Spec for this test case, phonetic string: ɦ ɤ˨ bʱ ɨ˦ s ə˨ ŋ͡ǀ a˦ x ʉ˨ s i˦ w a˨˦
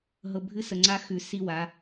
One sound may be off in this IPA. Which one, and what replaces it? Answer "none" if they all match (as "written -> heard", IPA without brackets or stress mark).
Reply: none